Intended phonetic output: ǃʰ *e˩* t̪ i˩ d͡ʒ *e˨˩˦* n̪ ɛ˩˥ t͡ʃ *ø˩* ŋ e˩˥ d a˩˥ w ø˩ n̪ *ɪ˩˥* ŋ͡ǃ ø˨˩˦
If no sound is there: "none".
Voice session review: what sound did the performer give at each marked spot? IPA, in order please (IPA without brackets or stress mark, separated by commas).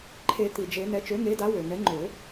e˨˩˦, e˨˩˦, ø˩˥, ɛ˩˥